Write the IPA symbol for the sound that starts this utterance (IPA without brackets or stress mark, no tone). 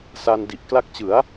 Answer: s